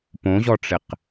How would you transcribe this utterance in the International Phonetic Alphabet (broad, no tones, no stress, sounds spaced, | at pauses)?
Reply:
p õ ʑ ɔ ʈ͡ʂ ɪ q